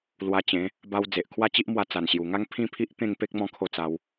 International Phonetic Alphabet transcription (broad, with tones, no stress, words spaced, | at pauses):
lwa˧t͡ɕẽ˨˦ | ba˦w d͡ze˨ʔkʰwa˦t͡ɕi˦ʔmwa˧ t͡sa˨˩nɕju˨˩ŋa˦ŋ pʰĩ˥˧pʰi˦ʔ t̪ẽ˥˧ŋ pe˦k̚mɔ̃˧kʰo˧ t͡sa˧w